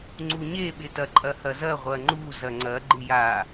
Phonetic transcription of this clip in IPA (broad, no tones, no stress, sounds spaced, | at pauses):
ŋ͡ǀ u ɲ e ɓ ɪ t ɐ ǃʼ ɐ h ɐ z ɐ ʁʷ ɐ ŋ͡ǃ u z ɐ ŋ͡ǀ ɐ ɡ͡ǃ ɪ j a